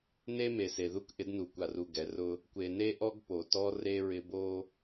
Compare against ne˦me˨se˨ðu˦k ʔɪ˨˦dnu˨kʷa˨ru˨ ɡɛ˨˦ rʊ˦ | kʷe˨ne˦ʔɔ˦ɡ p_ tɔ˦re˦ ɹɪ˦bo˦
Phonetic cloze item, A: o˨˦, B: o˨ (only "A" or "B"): B